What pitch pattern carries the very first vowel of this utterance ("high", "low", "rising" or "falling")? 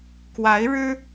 rising